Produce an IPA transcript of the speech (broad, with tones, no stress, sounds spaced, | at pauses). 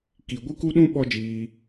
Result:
k i˨ ɡʷ ɨ˦ k u˦ ɗ ũ˦ ɓ ɔ˦ d͡ʒ iː˧